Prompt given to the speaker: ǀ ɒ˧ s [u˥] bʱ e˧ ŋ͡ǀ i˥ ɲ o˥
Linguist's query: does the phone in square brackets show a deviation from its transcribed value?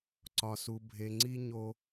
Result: yes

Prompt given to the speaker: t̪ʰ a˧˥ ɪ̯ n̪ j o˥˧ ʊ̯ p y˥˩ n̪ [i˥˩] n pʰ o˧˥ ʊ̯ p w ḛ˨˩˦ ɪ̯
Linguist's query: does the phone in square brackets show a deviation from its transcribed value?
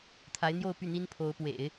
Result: yes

